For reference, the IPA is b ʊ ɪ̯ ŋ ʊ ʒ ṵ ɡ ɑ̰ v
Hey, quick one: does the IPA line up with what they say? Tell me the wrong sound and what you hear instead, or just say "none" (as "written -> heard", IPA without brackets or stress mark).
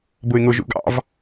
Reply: none